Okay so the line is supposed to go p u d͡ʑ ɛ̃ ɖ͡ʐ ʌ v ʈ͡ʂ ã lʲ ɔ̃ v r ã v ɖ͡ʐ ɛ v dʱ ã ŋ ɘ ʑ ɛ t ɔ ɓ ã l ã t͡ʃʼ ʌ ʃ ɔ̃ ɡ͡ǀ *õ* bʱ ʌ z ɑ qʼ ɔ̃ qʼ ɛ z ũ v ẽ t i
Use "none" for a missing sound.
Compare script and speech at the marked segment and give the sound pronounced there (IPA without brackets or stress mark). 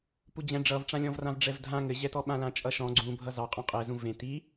ũ